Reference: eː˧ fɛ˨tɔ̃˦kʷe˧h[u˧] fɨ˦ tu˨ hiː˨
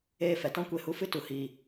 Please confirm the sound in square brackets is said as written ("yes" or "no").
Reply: yes